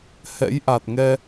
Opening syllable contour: rising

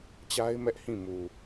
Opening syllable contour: high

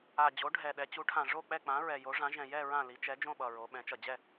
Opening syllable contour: low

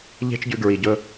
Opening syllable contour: high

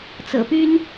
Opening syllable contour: low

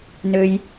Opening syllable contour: low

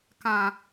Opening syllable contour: high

